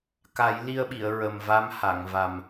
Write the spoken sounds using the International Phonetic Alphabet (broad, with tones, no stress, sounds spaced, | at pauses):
k a˨˩˦ j l i˧ ə̯ ɓ i˨˩˨ ə̯ ɹ ə˨˩ m v a˧˥ m h a˨˩˨ ŋ v a˨˩ m